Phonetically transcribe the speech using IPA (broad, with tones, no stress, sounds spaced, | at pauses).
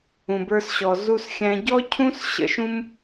ũ˦ b ə˞˥ s ɕ ɔ˦ z u˥ s xʲ æ̃˥ ɟ ɔ˥ cʰ ũ˥ s ɕ ə̰˦ ʃ ũ˥ m